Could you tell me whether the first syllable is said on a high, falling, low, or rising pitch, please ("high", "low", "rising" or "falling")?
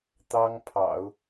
high